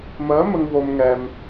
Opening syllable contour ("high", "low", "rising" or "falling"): rising